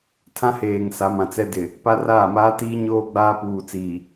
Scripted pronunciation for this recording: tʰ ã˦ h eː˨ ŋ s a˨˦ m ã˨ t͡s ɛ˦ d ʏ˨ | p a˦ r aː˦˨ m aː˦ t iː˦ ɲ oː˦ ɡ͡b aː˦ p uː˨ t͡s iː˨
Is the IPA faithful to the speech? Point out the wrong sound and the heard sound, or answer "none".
ʏ˨ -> ɪ˨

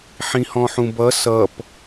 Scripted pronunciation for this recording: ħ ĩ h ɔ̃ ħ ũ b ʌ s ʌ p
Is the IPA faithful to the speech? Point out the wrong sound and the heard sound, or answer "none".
none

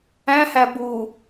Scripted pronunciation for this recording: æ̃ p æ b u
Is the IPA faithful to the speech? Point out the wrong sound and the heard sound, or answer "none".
p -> h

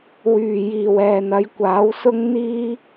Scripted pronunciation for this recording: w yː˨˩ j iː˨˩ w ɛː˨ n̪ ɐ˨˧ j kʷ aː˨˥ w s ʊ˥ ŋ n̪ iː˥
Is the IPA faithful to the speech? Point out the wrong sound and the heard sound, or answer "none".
none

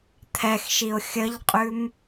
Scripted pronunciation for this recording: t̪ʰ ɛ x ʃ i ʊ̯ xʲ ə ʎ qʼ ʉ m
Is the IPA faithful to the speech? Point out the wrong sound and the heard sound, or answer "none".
none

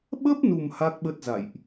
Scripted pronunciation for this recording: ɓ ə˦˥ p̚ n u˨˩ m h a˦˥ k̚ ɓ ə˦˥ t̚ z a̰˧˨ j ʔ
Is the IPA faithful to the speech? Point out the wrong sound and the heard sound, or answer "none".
none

